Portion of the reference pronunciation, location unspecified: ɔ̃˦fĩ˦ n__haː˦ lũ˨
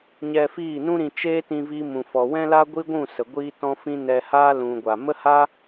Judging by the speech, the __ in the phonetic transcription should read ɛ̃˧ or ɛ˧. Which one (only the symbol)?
ɛ˧